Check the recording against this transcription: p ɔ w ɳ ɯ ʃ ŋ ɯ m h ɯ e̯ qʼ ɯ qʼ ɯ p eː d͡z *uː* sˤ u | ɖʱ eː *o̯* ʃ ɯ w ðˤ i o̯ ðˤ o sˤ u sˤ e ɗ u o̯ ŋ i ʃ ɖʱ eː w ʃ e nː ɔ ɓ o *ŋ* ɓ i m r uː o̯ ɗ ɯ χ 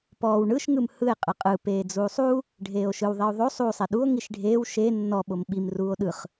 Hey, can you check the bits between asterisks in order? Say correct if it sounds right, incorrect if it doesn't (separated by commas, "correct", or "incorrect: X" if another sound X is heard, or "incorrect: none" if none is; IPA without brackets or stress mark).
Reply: correct, correct, incorrect: m